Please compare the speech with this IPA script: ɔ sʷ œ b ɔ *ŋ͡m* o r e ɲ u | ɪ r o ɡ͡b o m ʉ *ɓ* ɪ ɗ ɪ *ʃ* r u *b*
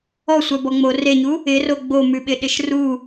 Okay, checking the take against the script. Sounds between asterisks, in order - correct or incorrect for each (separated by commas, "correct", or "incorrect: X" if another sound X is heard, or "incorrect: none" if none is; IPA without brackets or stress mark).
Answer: correct, correct, correct, incorrect: none